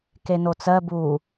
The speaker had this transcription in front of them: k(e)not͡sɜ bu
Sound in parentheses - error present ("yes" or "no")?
no